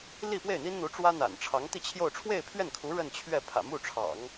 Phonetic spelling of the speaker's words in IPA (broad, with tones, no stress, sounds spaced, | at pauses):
l i˥˧ p w e˥˩ ɪ̯ n̪ i˥ n n̪ u˧˥ ʈ͡ʂ w ä˥ n̪ a̰˨˩ n ʈ͡ʂʰ ɑ˧˥ ŋ t̪ i˥˧ t͡ɕʰ j o˥˧ ʊ̯ ʈ͡ʂʰ w e˥˧ ɪ̯ pʰ ɥ ɛ˥˩ n kʰ u˧˥ ɻ ə˥˧ n t͡ɕʰ ɥ ɛ˥˩ pʰ ä̰˨˩ m u˥˩ ʈ͡ʂʰ ɑ̰˨˩˦ ŋ